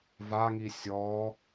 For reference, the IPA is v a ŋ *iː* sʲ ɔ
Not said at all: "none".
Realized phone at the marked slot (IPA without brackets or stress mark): i